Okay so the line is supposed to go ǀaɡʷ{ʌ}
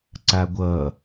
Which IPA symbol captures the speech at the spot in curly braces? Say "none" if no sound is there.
ʌ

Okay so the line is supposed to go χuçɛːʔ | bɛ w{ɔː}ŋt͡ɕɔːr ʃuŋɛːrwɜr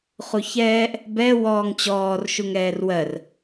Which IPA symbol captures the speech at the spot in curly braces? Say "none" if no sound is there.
ɔː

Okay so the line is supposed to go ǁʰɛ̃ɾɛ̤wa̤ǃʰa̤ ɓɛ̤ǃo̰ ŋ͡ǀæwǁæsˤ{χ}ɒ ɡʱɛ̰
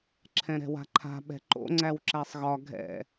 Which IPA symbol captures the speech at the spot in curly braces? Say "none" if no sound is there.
ɣ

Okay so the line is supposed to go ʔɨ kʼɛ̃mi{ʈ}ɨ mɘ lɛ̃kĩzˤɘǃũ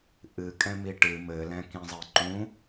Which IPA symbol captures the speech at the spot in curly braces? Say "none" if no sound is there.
ʈ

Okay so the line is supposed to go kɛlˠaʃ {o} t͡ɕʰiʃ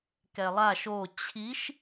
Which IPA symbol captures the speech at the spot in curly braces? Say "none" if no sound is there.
o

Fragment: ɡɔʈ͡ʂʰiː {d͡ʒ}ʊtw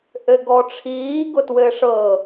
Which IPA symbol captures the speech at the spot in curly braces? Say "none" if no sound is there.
ɡ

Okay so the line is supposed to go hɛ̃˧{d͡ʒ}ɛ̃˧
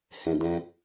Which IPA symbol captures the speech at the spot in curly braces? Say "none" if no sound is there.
d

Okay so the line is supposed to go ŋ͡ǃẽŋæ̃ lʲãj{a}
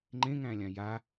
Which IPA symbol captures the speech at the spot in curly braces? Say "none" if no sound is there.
a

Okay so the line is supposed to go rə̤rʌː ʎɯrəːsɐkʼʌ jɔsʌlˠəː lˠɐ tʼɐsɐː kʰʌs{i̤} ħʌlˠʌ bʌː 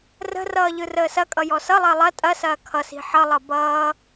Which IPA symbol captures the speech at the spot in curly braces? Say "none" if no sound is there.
i̤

